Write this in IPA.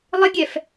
lˠ ɪ ɡʲ ɛ f

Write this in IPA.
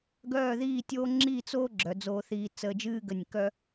ɡ œː˥˧ ð iː˥˧ tʲ oː˥ ŋ͡ǁ i˥˧ t͡s oː˥ ɡ͡ǁ œ˩˧ d͡z oː˧ θ iː˧ t͡s əː˧ d͡ʒ ɨː˥ ɡ ə˧˩ nʲ k œ˥

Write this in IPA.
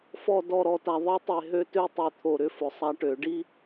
f ɔ˨ d ɔ˨ ɾ ɔ˨ t a˨ ðˤ i˦ tˤ e˨ ɦ ø˦ t ø˦ tˤ ø˨ t̪ʰ o˨ ɾ ʏ˦ f ʊ˨ sˤ a˦ ʈ ø˨˦ ɖ i˦

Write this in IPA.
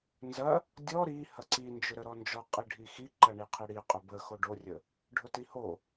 n z ɐ | dʲ ɔ ɾ i h ɐ ǀ i n d͡ʒ ʊ ɾ ə ɾ ɔ n d͡ʒ ɔ qʼ i ɖʱ i x i ǃ ɐ ɳ i qʰ i ɽ i qʼ ʊ b ə x o ɖ o rʲ ə | ɖʱ ʊ t i h o

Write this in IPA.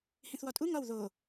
h ĩ θ w ɒ tʼ u ŋ ɒ w ð o

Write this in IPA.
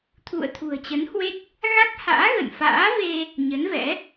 t̪ʰ ṵ˧˨ ə̯ t̪ʰ ṳ˨˩ ə̯ t͡ɕ ə˨˦ n h w e˦˥ t̚ | ɣ a˦˥ k̚ h a̰ː˧˥ ɣ ə̰˧˨ n f a̰ː˧˥ v e˧ | ɲ ə˨˦ n v ɛ̰˧˥

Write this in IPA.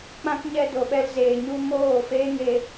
k͡p ã˦ k ɲ ɛ˧ d o˨ ɓ ɛ˧ l z eː˨ ɲ u˧ m oː˦˨ f eː˦ ŋ e˧

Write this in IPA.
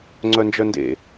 ŋ͡ǀ œ n d͡ʒ œ n d ḛ

